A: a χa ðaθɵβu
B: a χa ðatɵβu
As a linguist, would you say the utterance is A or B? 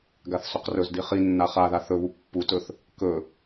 A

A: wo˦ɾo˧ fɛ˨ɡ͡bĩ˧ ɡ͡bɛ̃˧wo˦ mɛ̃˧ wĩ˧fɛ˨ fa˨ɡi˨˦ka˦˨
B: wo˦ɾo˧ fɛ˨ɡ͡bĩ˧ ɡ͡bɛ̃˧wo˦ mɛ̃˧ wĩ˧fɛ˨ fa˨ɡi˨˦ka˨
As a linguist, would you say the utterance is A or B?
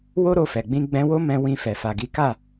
A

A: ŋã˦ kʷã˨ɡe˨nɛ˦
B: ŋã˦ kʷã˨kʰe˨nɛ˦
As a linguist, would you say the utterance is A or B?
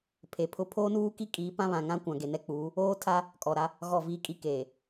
A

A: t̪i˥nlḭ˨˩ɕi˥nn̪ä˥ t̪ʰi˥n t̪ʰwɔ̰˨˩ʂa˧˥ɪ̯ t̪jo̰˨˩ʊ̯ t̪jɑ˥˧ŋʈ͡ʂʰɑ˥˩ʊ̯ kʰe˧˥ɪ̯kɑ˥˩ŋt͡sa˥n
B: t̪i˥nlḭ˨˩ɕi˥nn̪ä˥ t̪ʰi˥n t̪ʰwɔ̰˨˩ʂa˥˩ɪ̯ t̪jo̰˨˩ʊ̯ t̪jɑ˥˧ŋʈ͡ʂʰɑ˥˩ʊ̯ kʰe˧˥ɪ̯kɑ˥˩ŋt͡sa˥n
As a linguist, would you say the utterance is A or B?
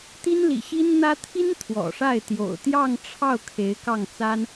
B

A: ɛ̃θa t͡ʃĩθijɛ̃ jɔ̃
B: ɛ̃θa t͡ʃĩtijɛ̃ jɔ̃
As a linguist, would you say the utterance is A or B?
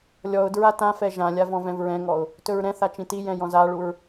B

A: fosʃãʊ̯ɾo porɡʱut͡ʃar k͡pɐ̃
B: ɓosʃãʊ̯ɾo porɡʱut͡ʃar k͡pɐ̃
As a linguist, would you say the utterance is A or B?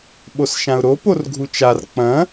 B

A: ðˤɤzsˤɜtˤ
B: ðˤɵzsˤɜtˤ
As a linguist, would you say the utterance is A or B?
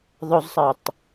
B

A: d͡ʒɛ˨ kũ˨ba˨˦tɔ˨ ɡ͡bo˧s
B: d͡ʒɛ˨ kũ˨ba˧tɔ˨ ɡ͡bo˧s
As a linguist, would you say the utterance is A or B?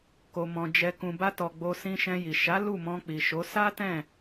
B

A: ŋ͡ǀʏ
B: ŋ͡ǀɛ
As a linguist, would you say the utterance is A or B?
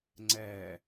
B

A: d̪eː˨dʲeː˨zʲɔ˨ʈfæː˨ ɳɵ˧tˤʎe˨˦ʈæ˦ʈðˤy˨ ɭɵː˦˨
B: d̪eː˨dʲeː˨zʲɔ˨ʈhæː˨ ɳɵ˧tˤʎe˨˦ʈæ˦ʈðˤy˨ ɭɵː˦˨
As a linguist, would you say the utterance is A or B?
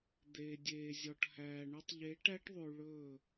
B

